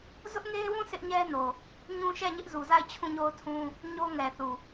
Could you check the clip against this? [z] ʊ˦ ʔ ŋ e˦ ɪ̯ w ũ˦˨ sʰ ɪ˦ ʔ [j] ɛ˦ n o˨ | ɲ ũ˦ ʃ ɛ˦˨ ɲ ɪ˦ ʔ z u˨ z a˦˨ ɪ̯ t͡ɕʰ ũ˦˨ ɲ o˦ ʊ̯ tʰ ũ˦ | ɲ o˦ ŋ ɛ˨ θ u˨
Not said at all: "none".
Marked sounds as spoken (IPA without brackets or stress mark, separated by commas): z, ɲ